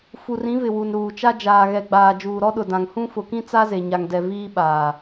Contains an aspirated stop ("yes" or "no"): no